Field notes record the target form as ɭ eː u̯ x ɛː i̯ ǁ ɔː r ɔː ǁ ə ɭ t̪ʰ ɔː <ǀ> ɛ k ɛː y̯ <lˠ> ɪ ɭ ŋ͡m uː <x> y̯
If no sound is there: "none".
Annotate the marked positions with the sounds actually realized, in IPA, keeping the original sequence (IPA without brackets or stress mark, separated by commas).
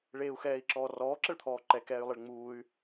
ǃ, lˠ, none